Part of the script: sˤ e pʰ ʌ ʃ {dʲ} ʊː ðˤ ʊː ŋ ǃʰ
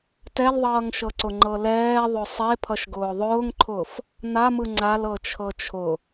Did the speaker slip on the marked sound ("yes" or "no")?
yes